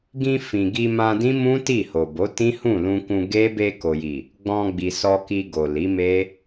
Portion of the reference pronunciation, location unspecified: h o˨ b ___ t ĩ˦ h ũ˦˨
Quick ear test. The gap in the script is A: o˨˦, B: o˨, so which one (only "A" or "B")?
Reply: A